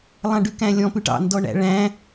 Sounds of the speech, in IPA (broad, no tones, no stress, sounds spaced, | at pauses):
lˠ ɑ̃ ɖ ʉ k æ̃ lʲ ɔ̃ p ʉ ʈ ɑ̰ n d ɔ ɳ æ̰ ɭ æ̃